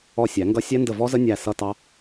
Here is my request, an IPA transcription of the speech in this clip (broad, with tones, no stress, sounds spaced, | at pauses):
ɔ˦˨ sʲ æ˨˩˦ ŋ ɡ ʌ˦˥ sʲ ɛ˦˥ n d ə˦˨ v ɔ˦˥ z ə˦˥ nʲ æ˦˨ s ʌ˦˥ t ɑ˦˥